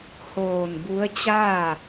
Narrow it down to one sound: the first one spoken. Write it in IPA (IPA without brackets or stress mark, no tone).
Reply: h